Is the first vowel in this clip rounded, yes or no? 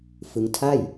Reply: no